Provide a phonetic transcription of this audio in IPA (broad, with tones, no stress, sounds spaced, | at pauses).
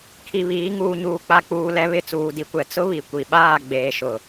kʰ i˨ β iː˨˦ ŋ uː˨ ɲ uː˨ k͡p a˨ k͡p uː˨ l ɛ˨ β ɪ˦˨ t͡s uː˨ d i˨ kʷ ɛ˨ t͡s ʊ˦ β i˨ kʷ i˨ ɓ aː˦˨ ɡ͡b eː˨ ʃ ʊ˨